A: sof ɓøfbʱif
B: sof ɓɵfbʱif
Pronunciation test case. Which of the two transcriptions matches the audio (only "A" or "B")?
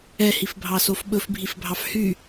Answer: B